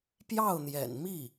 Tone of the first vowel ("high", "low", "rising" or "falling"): falling